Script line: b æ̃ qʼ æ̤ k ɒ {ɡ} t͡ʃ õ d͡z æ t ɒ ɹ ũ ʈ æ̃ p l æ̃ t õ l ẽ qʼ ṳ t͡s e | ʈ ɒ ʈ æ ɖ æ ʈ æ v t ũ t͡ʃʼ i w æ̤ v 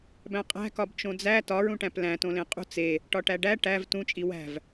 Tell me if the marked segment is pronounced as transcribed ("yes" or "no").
no